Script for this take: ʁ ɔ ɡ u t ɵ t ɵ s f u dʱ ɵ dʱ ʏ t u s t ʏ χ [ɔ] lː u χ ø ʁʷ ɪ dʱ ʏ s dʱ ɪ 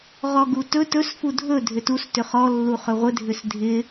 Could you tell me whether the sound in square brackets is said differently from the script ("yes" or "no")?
no